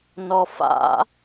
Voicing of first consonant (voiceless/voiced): voiced